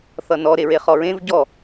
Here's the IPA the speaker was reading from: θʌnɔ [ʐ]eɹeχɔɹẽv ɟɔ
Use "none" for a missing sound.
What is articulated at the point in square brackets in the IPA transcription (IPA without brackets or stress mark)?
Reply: ɾ